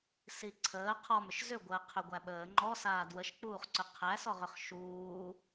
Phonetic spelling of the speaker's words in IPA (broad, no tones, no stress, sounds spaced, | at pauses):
s i ǀʰ əː qʰ ɔ m ʏ ʃ z ʏ ɡʷ əː qʰ ʏ ɡʷ æ ɓ əː ŋ͡ǃ ɔ s aː d w ə ʃ k͡p uː χ ǀ ʏ qʰ æ s ɔ ʁ ʏ χ ʃ uː